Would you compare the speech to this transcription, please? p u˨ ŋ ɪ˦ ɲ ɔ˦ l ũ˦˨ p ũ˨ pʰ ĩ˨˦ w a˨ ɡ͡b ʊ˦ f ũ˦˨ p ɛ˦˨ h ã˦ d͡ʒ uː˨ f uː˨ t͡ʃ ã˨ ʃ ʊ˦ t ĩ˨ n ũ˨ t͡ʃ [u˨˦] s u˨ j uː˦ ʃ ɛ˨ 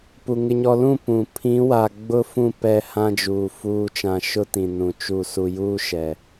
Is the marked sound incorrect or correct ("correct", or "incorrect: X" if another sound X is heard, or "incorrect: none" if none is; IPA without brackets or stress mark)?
incorrect: u˦˨